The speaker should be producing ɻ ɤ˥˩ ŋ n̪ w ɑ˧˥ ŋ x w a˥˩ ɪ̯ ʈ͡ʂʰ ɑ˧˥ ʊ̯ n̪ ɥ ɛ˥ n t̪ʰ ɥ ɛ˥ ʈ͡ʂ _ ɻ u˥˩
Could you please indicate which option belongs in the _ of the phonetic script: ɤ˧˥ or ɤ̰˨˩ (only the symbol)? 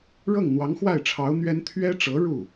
ɤ˧˥